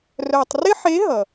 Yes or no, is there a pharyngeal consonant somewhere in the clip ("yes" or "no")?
yes